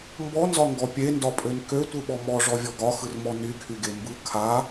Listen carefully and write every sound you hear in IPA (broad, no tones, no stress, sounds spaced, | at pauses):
m b ɔ n z ɒ ŋ ɡ ɔ pʲ e n d ɒ pʼ ø n k ø tʷ ɯ ɓ ɔ m ɔ ʐ ɔ vʲ ɔ ɡ ɒ x ɯ r m ɔ n y kʰ y ɡ e m b ɯ kʰ a